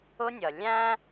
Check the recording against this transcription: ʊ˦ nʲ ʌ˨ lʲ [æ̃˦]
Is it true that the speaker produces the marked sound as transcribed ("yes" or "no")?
yes